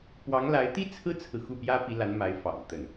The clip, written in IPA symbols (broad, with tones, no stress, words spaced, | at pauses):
pwɑ˧˥ŋla˧˥ɪ̯ t̪i˥ t͡sʰɹ̩˥t͡sʰɹ̩˨ xu˥˩pjä˥pi˧˥la˧˥n ma˧˥ɪ̯fɑ̰˨˩ŋ t̪ə˥˩n